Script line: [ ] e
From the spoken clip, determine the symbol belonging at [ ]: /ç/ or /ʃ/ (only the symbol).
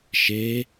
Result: ʃ